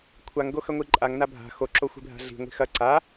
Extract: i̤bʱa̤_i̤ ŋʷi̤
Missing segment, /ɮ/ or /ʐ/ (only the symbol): ɮ